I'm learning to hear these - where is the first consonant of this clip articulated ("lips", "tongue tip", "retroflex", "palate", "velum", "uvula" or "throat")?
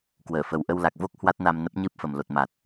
velum